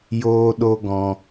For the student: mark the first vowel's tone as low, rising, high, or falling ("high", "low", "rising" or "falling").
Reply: high